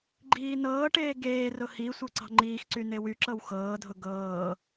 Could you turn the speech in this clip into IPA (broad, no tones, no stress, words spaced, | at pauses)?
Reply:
ɡ͡ǃiːnɤːʈeː ɡeːrʊ hi sʷɤǀɑ̤ŋ͡ǃiːxǀy newyǁɤw xɤːdʱʊ ɡɤː